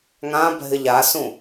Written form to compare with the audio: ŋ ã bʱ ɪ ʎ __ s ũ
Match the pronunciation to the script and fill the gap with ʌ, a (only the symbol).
a